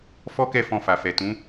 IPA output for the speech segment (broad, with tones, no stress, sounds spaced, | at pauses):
f ɔ˦ k ɛ˦˨ f ɔ̃˧ f a˨ f ɛ˨ t ũ˨˦